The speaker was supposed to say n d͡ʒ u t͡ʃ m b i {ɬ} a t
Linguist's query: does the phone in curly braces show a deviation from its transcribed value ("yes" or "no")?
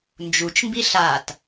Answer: no